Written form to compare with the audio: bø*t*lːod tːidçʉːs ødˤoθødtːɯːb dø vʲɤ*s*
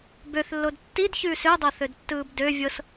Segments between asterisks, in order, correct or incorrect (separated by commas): incorrect, correct